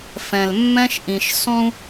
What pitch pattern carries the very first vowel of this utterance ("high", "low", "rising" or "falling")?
low